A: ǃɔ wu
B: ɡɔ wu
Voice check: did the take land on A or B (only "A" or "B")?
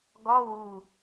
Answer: B